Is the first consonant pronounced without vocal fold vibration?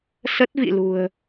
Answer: yes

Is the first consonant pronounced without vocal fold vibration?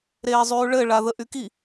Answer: no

